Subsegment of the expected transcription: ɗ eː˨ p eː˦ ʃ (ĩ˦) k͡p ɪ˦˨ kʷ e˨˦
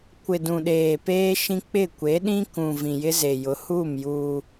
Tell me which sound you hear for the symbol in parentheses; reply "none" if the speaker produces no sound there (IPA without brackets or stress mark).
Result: ĩ˦